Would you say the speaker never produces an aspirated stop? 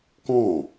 yes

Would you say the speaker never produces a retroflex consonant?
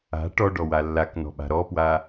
no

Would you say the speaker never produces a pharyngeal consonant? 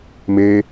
yes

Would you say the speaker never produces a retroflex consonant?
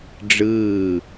no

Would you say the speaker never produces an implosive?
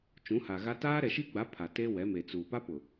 yes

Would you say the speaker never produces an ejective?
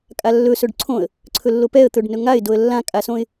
no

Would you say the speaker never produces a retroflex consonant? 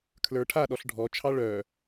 no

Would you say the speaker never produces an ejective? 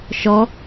yes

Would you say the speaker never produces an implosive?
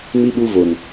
no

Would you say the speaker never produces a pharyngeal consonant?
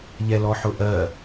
no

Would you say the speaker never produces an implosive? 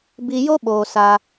no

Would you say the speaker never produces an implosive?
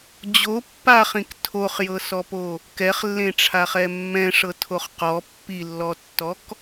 yes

